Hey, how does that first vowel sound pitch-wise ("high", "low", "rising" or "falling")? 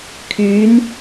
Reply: rising